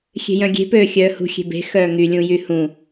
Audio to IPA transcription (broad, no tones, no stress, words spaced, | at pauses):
xʲe̤jœ̃ɡʲe̤ pøːxʲœːhṳ xʲe̤be̤ xœːŋy lʲũjyhũ